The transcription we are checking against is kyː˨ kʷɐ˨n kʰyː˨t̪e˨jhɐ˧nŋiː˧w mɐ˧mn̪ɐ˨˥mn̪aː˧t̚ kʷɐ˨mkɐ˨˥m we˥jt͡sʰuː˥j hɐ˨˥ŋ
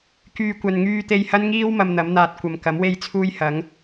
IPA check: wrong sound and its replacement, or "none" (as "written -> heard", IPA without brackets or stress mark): kʰ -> ŋ